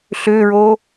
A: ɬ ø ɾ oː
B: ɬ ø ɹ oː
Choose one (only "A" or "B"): B